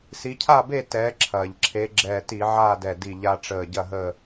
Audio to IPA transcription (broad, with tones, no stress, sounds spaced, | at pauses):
s i˨˦ cʰ a˥˨ b e˥˨ t ɛː˨˦ ǁʰ ɐː˩ ʎ ǁʰ e˨˦ ɡ͡ǁ ɛː˧˩ t i˧˩˧ ʕ aː˥˨ d ɛ˧˩ d i˧˩ ʎ a˦ ʈ͡ʂ əː˧˩ ɟ ɐ˥˨ ɦ əː˥˨